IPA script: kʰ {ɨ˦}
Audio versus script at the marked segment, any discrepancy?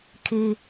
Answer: yes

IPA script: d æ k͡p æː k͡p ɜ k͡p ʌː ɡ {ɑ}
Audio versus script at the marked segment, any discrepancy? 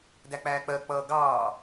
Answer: yes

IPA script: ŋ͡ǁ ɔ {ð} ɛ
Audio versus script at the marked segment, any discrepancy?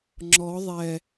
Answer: yes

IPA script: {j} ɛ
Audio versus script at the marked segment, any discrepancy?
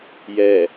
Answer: no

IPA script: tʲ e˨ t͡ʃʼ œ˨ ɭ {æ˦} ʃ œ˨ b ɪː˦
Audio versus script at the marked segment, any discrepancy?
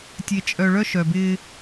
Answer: yes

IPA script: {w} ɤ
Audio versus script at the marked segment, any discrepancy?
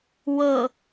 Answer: no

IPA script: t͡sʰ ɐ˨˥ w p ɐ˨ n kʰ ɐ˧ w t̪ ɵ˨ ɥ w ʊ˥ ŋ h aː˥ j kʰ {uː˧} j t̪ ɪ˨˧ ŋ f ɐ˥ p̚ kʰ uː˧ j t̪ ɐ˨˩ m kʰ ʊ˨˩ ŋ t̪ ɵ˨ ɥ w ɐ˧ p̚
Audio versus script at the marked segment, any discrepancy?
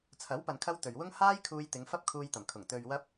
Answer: no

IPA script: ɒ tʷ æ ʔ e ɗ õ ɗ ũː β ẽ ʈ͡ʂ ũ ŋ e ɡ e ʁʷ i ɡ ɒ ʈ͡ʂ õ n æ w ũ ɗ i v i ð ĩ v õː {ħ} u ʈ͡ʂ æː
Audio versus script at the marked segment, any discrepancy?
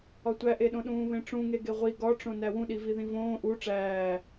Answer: yes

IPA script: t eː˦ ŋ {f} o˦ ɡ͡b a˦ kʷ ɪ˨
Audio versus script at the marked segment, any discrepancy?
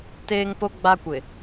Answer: yes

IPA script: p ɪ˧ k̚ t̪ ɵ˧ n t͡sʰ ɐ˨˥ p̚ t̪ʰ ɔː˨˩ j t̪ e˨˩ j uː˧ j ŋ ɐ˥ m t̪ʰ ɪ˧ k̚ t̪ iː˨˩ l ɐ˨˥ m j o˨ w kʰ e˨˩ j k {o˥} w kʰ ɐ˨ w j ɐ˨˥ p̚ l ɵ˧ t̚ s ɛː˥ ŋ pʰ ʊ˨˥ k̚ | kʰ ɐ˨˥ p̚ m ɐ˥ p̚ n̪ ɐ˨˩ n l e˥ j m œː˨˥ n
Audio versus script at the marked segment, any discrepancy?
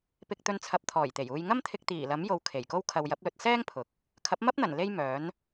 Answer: no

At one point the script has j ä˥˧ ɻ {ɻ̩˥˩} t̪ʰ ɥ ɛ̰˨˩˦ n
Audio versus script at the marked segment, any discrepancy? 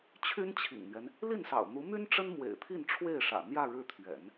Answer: no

